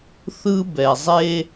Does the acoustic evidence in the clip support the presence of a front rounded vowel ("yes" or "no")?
no